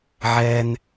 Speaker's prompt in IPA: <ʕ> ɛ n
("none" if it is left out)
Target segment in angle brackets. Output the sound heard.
ʕ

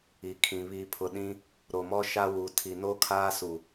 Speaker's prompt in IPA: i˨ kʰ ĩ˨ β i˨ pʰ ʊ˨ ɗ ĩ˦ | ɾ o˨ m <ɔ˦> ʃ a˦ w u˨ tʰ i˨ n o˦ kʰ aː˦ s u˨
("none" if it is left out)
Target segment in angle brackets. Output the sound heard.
ɔ˦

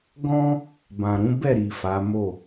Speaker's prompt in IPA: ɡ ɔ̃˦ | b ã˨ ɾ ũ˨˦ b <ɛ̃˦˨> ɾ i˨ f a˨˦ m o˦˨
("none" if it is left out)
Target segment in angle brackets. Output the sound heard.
ɛ˦˨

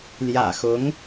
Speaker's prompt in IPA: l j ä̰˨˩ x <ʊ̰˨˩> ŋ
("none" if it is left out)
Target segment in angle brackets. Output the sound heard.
ʊ˧˥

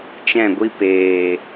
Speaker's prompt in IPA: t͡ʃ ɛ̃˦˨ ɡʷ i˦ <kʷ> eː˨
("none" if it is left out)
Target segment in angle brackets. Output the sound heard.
p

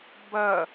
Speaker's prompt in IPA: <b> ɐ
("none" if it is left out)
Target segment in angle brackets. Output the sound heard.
b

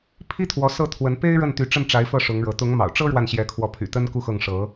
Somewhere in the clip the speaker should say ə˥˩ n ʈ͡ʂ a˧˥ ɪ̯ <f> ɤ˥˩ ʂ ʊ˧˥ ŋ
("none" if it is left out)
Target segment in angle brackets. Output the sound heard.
f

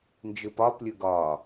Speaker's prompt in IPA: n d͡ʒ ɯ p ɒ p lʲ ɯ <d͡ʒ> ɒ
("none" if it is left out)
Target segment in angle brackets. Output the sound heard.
ɡ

